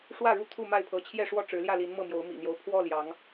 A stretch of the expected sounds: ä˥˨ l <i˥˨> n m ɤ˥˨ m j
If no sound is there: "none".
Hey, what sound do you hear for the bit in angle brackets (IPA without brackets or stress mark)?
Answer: i˨˦